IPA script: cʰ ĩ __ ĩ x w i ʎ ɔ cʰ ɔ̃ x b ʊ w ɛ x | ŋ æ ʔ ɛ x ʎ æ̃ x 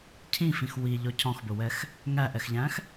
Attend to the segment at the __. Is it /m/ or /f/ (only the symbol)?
f